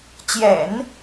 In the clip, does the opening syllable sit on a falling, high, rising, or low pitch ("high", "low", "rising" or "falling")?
low